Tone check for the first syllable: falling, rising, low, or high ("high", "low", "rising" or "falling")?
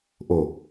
low